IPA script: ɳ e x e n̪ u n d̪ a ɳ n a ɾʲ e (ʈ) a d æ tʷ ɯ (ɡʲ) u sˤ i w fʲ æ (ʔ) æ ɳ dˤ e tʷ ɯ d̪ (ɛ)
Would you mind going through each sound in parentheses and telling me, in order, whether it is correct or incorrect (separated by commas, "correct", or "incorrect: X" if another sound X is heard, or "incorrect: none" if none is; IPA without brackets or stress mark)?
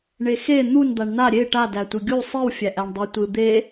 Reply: correct, correct, correct, incorrect: e